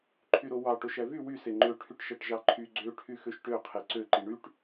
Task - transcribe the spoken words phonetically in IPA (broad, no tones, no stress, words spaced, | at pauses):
ǃʰyɾowɑ ʈoʃævy wy seŋ͡ǃø ʈʰyʈʃæʈʒɑǃʰy ɡ͡ǀø ʈʰyxøʃʈø qʰeǀø ǃiɳyʈ